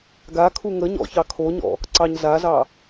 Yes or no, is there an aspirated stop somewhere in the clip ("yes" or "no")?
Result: yes